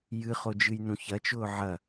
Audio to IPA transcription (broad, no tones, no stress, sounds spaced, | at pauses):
j ɨ χ o d͡ʒ ɨ j n ũ ç ɐ t͡ʃ ʊː ʕ ɐ